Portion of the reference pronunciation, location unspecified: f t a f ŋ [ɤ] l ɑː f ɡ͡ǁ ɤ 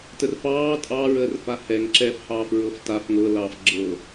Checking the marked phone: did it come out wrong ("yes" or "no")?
no